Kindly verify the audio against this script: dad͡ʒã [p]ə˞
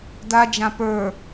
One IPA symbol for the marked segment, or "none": p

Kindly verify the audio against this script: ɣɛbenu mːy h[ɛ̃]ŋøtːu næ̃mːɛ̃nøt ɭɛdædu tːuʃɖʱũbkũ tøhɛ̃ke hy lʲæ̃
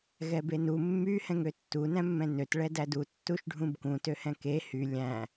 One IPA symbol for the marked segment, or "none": ɛ̃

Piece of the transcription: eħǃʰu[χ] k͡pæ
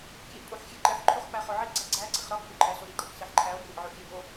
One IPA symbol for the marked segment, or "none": χ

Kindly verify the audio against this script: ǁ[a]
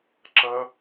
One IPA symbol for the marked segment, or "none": ɐ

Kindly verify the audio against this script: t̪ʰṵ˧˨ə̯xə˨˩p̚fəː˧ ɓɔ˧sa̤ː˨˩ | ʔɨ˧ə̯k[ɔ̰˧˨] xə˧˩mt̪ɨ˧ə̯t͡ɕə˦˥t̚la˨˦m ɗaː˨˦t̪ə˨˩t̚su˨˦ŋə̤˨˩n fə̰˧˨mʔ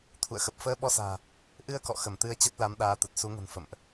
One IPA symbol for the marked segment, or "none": ɔ̰˧˨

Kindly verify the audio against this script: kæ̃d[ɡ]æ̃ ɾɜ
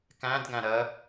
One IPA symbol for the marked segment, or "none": ɡ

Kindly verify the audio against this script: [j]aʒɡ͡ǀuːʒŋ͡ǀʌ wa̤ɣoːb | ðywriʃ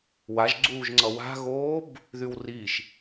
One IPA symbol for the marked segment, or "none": w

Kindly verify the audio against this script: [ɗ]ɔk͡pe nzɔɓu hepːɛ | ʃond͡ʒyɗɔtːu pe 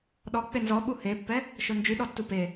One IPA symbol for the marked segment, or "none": ɗ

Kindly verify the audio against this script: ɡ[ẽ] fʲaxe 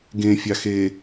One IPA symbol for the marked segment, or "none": ẽ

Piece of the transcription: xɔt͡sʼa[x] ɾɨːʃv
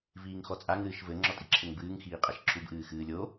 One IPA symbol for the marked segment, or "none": ŋ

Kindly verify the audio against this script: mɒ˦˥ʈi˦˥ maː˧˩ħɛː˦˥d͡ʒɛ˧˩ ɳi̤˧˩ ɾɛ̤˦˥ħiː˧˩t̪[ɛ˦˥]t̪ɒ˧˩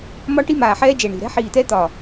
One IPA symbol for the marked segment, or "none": ɛ˦˥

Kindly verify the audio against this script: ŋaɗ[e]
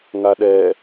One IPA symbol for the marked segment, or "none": ɛ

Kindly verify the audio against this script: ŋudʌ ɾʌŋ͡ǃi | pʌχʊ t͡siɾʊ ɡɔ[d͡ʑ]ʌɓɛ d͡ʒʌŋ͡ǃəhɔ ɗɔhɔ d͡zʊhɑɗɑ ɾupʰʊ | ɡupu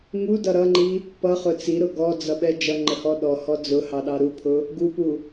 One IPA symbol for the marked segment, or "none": d͡z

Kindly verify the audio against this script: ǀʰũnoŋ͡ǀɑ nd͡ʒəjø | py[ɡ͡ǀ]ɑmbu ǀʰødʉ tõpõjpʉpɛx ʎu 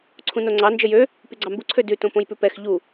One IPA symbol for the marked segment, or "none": ɡ͡ǀ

